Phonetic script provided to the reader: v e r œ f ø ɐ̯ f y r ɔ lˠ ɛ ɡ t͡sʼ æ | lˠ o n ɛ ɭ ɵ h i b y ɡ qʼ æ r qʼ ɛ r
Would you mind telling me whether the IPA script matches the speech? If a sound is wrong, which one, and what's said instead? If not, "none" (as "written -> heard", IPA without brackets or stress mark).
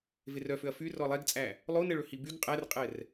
none